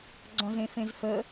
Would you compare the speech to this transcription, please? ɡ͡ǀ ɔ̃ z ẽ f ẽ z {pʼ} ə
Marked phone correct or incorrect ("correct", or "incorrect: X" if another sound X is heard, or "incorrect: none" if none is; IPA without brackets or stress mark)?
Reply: incorrect: f